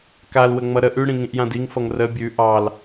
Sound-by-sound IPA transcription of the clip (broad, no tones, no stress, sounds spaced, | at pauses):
k a l w ə ŋ͡m ʌ ɾ ə ʔ ʉ ɽ ĩ ŋ ĩ ʔ j ã d i ŋ f ʌ ŋ r ə bʲ ʉ ʔ ɑ l